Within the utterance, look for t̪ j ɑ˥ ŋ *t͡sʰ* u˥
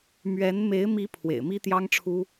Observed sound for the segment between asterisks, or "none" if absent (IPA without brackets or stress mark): ʈ͡ʂʰ